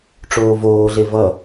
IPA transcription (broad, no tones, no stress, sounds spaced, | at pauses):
ʈ͡ʂ oː v oː ɮ e v ʌ